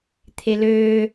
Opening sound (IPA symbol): t̪ʰ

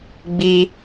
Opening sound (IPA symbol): ɡ͡b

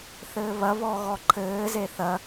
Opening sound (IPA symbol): θ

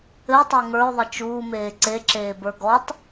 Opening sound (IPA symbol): ɘ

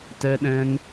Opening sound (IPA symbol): t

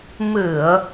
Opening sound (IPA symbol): m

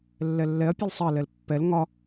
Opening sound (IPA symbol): lː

